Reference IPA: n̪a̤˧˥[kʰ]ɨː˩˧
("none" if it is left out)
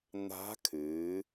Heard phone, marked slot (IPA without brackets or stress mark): kʰ